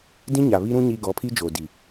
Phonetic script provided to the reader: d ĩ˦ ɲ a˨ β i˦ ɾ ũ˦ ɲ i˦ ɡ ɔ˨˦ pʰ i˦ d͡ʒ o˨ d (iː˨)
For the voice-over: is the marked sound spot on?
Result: no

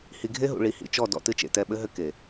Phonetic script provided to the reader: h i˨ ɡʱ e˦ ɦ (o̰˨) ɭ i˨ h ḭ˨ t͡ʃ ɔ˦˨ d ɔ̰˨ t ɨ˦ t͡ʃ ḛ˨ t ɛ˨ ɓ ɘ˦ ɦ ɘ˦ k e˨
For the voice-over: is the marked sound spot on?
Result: no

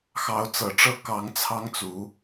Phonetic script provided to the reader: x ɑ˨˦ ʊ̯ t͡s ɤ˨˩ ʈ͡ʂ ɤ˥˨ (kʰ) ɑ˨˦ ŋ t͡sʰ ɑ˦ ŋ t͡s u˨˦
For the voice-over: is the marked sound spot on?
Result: no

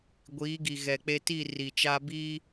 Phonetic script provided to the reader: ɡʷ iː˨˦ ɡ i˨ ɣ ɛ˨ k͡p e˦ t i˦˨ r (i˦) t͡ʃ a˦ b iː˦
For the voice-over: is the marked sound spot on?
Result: no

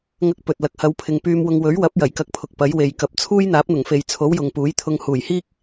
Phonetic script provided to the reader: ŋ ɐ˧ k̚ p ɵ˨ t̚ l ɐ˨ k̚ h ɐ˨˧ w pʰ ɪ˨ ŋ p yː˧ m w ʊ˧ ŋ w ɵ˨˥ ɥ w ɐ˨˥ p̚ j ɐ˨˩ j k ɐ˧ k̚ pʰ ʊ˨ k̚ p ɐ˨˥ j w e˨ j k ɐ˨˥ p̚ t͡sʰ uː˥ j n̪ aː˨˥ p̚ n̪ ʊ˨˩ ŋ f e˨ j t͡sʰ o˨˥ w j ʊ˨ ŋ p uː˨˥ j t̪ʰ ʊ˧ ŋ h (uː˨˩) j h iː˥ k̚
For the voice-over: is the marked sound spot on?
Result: yes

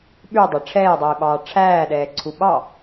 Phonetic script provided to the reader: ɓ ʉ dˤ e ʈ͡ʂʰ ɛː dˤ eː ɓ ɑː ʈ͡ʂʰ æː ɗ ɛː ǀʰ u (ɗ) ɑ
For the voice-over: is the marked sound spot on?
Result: no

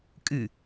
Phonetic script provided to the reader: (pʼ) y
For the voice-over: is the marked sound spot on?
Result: no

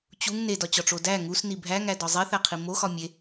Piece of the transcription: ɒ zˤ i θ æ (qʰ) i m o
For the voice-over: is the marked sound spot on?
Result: yes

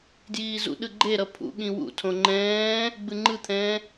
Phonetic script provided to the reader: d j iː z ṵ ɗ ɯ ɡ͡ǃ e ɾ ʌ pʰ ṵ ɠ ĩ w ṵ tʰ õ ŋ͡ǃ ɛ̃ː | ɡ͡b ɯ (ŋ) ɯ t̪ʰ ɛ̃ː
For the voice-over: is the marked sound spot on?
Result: no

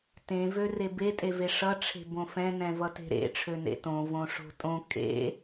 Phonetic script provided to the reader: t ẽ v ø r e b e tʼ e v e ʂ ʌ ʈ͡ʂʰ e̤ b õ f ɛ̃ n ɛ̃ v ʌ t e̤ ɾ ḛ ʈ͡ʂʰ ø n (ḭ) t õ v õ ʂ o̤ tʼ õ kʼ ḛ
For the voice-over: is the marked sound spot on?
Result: no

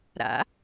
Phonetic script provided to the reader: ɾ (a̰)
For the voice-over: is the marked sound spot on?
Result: yes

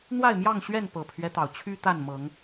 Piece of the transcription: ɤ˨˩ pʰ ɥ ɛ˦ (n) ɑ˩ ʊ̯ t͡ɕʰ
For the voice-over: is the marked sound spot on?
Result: no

